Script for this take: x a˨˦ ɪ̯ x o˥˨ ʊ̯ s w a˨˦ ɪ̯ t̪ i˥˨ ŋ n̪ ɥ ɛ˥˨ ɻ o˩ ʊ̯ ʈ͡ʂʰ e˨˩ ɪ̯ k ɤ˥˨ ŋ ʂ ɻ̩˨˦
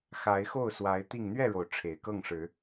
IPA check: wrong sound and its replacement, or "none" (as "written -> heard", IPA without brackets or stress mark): none